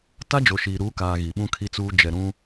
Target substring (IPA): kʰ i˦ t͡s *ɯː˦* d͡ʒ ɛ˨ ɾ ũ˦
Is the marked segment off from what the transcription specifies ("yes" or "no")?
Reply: yes